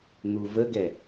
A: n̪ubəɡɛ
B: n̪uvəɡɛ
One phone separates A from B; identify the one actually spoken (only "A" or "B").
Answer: B